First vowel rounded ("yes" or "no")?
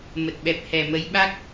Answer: no